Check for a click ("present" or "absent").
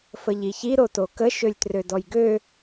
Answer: absent